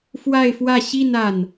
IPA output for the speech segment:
fwa˥˧ɪ̯fwä˥˧ ɕi˥˧n a˥˩n

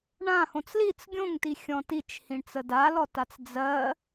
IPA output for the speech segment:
ɳãhõt͡s lit͡s ɡʲõŋti xʲɔ̃tit͡ʃhĩɳt͡sə dalɔtat͡s d͡zɜ

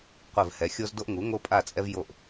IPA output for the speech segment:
qʷɘ˦˨vhɛ˨˥ xʲo˦zdo˦ʔ ŋu˨˥ŋo˦pʼa˦˨t͡sʼɛ˦v jo˦˨ʔ

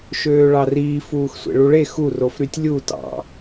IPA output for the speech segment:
ʃøːɭɑriː fuːxsʷḛɭuɭe xu rofɾytʲlʲu tɑ̰

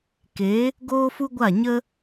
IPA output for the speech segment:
ke˨˦ | ɡoː˦fu˦ɡʷa˦˨ɲə˦

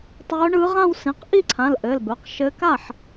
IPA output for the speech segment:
tˤœː˧˥ɳɯː˧˥ ʁã˥˧wsĩ˩˧˩q ʔi˥˧ǀʰã˩˧˩l ʔɘː˩˧˩lbœ˩˧˩q ʃɘ˧˥ ka˥˩ħ

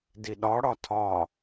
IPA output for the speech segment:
diɗɒɽɒ tʰɒ

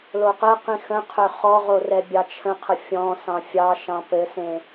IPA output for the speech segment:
loqɛqĩ xə̃qʰø χɔʁo rɛbʲɑt͡ʃʰə̃qʰə fʲɔ̃sɑ̃ fʲɑʃɑ̃ pɘsẽ

